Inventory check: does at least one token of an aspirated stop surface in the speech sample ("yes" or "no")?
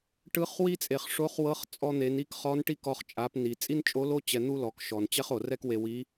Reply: no